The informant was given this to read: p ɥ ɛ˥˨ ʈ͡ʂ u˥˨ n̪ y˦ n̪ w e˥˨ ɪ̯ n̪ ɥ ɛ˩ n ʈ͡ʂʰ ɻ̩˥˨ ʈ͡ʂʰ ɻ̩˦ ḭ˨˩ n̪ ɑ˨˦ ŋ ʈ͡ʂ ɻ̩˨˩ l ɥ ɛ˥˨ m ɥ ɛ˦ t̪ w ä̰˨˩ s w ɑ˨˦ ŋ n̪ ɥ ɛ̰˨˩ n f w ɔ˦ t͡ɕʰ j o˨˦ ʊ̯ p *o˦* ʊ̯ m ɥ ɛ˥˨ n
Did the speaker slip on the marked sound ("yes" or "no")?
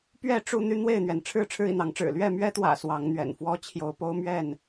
no